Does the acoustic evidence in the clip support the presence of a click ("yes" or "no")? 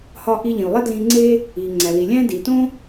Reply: yes